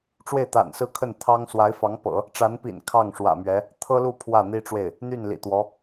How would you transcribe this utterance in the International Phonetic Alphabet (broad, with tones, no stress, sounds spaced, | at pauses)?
ʈ͡ʂ w e˥˩ ɪ̯ t̪ a̰˨˩ n s ɹ̩˥˧ kʰ ə˥˩ n t̪ʰ ɑ˥ ŋ s w a˧˥ ɪ̯ f ɑ˧˥ ŋ p ɤ̰˨˩˦ | ʈ͡ʂ a˧˥ n p ḭ˨˩ n kʰ ɑ˥˩ ŋ ʂ w ä̰˨˩ m ɥ ɛ˧˥ | t̪ʰ ɤ˥ l u˥˧ pʰ w ä˥˩ n̪ i˥ ʈ͡ʂ w e˥˩ ɪ̯ | n̪ y˥˩ n l ḭ˨˩ t̪ w ɔ˧˥